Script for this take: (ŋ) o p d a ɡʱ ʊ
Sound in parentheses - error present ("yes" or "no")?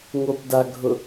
no